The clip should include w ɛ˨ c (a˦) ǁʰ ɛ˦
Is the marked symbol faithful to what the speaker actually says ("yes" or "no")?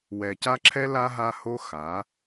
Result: yes